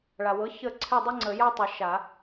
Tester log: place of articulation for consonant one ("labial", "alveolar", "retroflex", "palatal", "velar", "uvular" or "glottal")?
retroflex